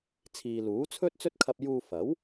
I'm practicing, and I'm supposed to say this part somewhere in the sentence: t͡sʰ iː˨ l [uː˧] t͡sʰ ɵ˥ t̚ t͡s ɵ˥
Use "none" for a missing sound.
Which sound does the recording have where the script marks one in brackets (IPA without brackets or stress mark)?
uː˨˥